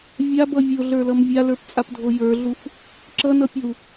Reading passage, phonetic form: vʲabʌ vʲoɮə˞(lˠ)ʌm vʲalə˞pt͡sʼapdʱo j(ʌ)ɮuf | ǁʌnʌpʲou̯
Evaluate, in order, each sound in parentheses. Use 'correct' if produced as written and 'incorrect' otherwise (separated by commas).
incorrect, incorrect